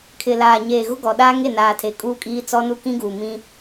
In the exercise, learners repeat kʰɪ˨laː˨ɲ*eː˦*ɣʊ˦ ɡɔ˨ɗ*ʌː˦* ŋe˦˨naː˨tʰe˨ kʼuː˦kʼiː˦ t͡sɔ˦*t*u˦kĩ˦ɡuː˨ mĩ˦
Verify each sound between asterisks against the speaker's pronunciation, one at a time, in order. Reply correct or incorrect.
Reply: incorrect, incorrect, incorrect

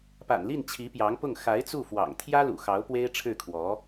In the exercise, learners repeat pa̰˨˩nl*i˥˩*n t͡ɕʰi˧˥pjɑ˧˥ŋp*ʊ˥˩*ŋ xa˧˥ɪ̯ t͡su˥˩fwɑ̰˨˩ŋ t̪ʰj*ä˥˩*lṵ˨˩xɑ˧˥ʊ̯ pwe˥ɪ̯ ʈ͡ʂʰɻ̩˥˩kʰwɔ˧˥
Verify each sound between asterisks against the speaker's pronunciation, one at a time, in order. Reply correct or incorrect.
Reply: correct, correct, incorrect

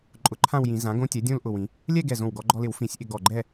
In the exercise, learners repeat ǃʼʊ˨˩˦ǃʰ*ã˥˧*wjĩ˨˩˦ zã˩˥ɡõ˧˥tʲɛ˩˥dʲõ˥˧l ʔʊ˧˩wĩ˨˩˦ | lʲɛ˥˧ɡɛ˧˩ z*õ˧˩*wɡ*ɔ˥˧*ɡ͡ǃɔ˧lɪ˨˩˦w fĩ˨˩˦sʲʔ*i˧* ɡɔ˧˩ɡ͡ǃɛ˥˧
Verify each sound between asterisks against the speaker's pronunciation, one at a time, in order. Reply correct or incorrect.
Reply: correct, correct, incorrect, incorrect

